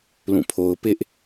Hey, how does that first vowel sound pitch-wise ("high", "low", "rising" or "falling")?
falling